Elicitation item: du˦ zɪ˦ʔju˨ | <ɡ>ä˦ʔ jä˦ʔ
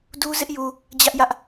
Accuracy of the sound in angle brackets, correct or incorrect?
incorrect